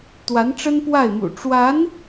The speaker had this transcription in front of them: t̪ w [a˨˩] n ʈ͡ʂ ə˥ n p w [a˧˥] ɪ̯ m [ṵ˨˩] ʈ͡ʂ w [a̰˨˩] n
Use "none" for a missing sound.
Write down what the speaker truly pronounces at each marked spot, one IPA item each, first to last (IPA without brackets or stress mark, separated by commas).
a˧˥, a˥˩, ṵ˨˩, a˧˥